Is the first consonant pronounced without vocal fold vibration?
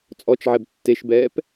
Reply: yes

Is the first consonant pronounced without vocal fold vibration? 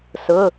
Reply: yes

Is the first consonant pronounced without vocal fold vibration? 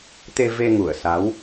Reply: yes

